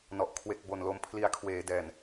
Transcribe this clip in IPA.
n ɔ˨˩ ʔ kʰ w e˨˩ k̚ b o˨˩ n l o˧ m pʰ l i˧ a̯ kʰ w eː˩˦ d ɛː˨˩ n

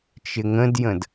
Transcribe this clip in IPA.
t͡ʃ ɪ ŋ ə̃ d j ə̃ d

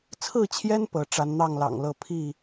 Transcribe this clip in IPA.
t͡sʰ ɹ̩˥˨ t͡ɕʰ j ɛ˦ n p ɤ˨˦ ʈ͡ʂ a˨˦ n n̪ ɑ˥˨ ŋ l ɑ̰˨˩ ŋ l ɤ˥˨ pʰ i˥˨

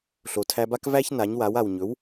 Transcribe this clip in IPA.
ɬ o˩ tʰ æ˧ b a˥ k v æ˥ ç n a˩˥ ɲ w a˩˥ w a˩ w ɲ ɵ˩˥ w

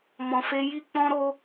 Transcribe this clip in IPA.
m ɔ̃˧ f e˦ j i˦ k͡p ɔ̃˦ ɾ o˦

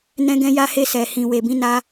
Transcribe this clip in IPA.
n ɛ̃˧ ɡ ɛ̃˧ j a˧ h e˧ s ɛ˨ h ĩ˨ w e˨ b ĩ˧ n a˧

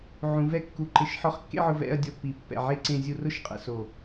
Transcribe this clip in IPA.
ʕ ũ˩˧ v ɛ˥˧ kː u˧˩ ǃ ɪ˧˩ ʃ ħ ɔ˧ χ kː ḛ˥˧ ʕ ʊ˧ v ɛ̰˥˧ ɐ̯ dʲ ɔ˧ pː i˩˧ pː ɛ̰˧˩ ʕ e˥˧ ǀ ẽ˧ zʲ u˧ r ʊ˥˧ ʃ qʼ ɛ̰˧ s o˧˩

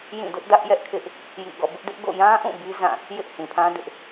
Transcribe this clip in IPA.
j ĩ˦˨ d ʊ˦ ʔ d ä˦ ʔ j ɛ˦ ʔ kʰ ɪ˦ ʔ | j ḭ˦˨ ɡ ɔ̰˦˨ b ɪ˦ ʔ d ɪ˦ ʔ ɡ o̰˦˨ j ã˦ ʔ ũ˦˨ b i˦ z ã˦˨ | j ɪ˦ ʔ h ĩ˨ pʰ ã˦ d ɪ˦ ʔ

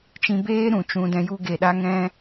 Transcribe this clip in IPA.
t͡ʃ ĩ˧ b eː˦ ɾ ũ˨ t͡ʃ ũ˧ d ɛ̃˧ j u˦ ɡ e˨ ɗ a˧ ŋ ɛ̃˧

